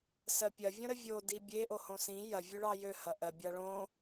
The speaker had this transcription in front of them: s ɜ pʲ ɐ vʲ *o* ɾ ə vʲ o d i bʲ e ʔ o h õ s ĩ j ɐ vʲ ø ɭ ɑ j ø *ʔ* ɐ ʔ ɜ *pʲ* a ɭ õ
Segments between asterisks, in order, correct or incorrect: incorrect: õ, incorrect: h, incorrect: bʲ

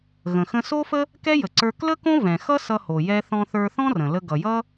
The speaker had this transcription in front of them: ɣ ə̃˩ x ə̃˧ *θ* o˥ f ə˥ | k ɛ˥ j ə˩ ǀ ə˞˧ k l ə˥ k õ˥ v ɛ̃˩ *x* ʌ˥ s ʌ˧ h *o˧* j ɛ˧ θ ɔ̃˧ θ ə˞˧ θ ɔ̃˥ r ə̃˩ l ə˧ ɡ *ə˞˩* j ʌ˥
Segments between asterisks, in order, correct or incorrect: incorrect: s, correct, incorrect: o˩, incorrect: ʌ˩

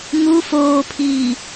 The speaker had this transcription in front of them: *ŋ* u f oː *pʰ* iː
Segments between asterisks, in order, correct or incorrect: correct, correct

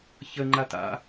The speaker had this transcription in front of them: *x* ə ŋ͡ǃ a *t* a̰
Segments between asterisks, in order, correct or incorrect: incorrect: ç, correct

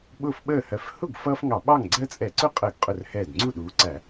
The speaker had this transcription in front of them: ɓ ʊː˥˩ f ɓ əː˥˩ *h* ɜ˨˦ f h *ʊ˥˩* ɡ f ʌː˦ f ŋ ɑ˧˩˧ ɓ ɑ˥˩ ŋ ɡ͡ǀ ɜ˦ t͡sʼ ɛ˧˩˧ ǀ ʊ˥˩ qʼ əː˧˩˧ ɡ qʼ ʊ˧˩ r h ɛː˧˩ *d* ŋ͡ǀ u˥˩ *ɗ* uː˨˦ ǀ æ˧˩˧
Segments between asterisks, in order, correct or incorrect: correct, correct, correct, correct

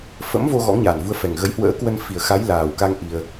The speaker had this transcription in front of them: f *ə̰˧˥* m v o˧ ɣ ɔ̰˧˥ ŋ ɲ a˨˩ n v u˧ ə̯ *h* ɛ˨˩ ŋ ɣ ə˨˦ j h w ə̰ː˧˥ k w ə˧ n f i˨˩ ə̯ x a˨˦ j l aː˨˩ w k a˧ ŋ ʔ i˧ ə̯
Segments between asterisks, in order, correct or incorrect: correct, incorrect: f

